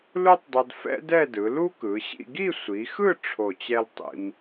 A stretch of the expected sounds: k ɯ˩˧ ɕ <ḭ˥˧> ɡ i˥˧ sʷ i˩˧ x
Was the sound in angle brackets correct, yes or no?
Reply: yes